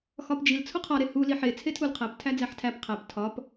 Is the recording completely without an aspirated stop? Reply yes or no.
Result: no